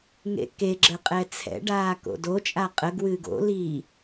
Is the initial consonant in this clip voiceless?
no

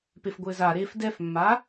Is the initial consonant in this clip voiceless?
yes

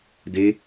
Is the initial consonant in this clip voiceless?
no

